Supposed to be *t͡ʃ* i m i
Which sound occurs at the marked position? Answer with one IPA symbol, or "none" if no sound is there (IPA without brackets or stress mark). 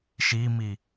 ʃ